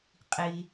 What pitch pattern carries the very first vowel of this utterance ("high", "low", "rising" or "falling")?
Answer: low